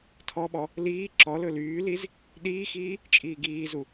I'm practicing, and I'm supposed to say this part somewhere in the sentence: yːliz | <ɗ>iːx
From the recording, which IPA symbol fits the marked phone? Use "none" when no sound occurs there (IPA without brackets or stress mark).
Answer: ɗ